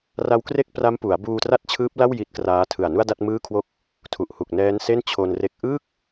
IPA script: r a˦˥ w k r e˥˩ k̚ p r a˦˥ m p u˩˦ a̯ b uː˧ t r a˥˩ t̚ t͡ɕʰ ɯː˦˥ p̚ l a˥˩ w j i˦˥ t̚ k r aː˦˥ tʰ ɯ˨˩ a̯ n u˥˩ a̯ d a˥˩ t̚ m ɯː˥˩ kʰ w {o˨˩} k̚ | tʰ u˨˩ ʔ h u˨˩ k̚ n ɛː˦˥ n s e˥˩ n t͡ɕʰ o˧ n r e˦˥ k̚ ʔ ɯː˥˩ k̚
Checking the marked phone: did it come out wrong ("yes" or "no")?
yes